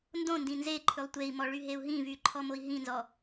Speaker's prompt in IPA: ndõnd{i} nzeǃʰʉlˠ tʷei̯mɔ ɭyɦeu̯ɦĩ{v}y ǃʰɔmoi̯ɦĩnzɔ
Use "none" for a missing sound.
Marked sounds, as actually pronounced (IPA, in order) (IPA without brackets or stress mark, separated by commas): ĩ, v